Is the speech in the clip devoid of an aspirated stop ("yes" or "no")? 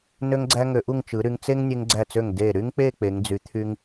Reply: no